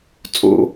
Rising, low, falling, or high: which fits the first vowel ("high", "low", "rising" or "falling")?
high